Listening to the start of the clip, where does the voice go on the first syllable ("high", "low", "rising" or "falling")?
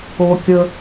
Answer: low